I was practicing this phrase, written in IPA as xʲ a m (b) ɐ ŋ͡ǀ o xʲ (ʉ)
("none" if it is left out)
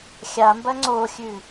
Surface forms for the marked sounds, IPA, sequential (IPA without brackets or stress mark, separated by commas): b, ʉ